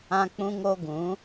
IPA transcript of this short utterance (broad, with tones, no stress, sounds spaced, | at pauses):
ã˦ k͡p ũ˦ ŋ o˦ ɡ ũ˨˦